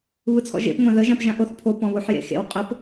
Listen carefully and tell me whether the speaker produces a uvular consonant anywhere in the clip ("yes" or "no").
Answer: yes